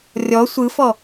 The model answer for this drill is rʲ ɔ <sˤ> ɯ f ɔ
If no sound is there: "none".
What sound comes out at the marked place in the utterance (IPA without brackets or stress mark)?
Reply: sʷ